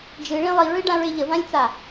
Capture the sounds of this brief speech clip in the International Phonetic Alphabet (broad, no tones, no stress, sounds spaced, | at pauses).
d͡ʒ ɨ ɭ ĩ lˠ i ɹ ɨ ɖ ã ɹ e ʎ ə v ã lʲ t͡s a